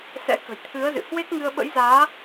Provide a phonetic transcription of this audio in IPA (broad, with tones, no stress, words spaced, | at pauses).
sɛ̰˧˥kə̤˨˩jt̪ʰɨ˨˦ə̯zɨ̰˧˨ hwe˦˥k̚ŋɨ˧ə̯ ɓə̰˧˥jzaː˨˦